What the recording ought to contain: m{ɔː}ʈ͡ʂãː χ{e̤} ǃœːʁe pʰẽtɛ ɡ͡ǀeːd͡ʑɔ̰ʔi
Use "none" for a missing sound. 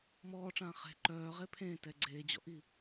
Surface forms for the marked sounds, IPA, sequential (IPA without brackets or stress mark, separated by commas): ɔː, e̤